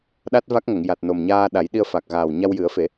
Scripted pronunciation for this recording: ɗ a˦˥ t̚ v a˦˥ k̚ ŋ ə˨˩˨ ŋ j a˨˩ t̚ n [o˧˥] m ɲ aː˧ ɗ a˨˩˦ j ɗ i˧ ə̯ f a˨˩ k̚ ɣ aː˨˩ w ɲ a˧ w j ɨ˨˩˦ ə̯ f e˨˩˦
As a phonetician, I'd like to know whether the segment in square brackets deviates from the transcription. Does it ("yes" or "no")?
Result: yes